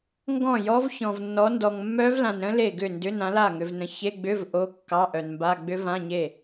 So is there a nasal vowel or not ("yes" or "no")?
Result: yes